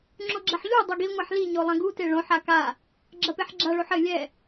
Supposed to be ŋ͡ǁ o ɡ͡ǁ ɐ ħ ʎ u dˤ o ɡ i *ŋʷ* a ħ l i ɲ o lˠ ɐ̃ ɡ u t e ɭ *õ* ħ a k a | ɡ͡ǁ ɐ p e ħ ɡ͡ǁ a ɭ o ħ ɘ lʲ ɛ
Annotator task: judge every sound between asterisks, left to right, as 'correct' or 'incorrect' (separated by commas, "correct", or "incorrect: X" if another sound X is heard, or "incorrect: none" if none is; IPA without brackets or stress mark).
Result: correct, correct